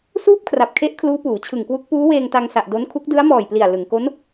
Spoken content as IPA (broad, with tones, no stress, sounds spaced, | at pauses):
s uː˥˩ p̚ kʰ r a˨˩ p̚ kʰ e˦˥ ʔ kʰ l uː˦˥ p uː˩˦ t͡ɕʰ ɯ˨˩ ŋ k w u˦˥ k̚ p uː˦˥ w eː˧ ŋ t a˧ ŋ s a˨˩ ʔ d o˦˥ n kʰ u˦˥ k̚ d ɯ˦˥ a̯ m ɔː˨˩ j p l i˨˩ a̯ l ɯ˩˦ ŋ k o˦˥ n